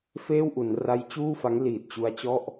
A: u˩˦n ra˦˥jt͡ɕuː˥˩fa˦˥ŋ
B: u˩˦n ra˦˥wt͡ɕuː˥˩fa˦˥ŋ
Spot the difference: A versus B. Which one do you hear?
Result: A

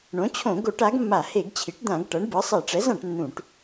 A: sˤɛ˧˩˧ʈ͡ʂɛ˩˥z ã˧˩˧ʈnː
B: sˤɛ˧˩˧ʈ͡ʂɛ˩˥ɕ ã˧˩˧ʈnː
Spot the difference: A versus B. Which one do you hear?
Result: A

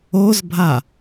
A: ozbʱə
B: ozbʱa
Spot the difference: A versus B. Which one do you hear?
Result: B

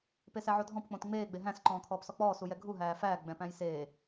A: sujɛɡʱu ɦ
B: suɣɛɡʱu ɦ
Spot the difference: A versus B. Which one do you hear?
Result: A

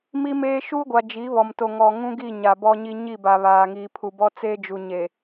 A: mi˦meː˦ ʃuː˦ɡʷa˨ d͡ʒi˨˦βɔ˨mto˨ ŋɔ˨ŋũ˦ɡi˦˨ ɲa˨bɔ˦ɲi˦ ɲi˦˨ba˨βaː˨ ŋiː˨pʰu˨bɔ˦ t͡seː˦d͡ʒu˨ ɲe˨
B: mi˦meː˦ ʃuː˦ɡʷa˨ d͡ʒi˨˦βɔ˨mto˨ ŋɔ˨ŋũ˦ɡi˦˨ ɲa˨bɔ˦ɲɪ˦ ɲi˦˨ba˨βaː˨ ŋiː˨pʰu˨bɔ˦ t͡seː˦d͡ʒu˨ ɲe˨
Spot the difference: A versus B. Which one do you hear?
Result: A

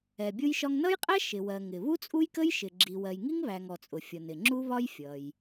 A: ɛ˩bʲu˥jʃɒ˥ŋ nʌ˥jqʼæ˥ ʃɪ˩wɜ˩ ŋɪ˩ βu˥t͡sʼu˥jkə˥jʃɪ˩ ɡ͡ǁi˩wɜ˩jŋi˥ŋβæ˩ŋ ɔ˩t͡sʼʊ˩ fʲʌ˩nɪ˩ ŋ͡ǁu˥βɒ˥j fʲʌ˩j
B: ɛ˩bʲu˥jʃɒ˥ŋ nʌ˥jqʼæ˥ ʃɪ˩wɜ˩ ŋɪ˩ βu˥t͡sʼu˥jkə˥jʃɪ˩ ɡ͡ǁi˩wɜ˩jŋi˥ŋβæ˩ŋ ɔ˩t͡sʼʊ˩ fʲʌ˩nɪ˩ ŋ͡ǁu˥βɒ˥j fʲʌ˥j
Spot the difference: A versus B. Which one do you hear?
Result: A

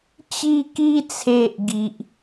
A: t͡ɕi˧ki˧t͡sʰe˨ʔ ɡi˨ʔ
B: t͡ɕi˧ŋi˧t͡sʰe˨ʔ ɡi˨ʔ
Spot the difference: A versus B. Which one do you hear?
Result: A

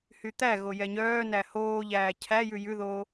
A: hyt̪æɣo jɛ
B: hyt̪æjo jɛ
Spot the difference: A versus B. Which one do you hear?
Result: A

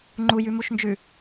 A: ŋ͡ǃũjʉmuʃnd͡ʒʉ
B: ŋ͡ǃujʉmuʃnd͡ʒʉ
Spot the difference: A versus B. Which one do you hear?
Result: B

